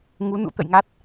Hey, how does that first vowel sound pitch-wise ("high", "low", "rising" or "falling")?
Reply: rising